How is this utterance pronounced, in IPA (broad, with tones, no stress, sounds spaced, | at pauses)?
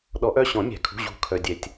ɗ ɔ˨˩˦ ʔ œ˩˧˩ ɕ ɔ̃˨˩˦ mʲ æ̤˨˩˦ kʰ ṳ˩˧˩ ʑ ṳ˨˩˦ kʰ œ˩ dʲ ɛ˩ tʲ